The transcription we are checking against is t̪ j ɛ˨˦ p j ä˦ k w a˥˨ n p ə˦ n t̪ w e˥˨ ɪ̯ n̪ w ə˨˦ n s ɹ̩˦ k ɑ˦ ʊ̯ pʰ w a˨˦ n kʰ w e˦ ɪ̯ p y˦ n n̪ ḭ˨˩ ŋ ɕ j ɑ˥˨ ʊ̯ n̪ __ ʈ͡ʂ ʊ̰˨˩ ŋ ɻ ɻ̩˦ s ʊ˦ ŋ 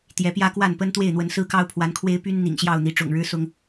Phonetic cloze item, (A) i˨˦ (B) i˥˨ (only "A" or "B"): A